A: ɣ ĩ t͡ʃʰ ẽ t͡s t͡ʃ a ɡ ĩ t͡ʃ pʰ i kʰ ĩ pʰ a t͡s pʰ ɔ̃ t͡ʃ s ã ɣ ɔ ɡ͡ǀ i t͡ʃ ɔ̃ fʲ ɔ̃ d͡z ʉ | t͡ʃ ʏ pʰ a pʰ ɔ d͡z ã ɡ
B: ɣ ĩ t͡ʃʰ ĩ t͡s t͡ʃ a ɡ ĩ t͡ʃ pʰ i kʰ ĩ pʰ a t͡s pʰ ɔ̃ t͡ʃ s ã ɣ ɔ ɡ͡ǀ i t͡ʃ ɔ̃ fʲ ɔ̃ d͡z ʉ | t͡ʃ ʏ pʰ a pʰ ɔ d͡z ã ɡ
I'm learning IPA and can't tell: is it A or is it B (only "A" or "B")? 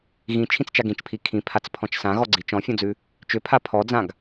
B